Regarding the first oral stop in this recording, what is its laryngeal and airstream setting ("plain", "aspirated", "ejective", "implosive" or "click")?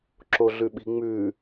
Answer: click